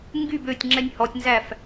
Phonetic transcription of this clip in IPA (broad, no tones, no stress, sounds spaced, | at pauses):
ŋ ɡ y b ø tʲ ŋ͡ǁ ɛ nʲ h ɔ tʲ n z æ f